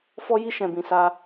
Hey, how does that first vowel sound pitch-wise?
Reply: high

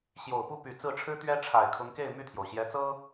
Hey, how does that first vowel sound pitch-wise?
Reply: low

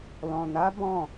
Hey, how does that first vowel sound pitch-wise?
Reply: low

